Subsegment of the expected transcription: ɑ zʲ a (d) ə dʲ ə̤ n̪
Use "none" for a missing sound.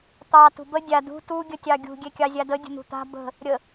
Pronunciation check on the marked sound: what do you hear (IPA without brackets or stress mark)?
d